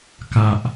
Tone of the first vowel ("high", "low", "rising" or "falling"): low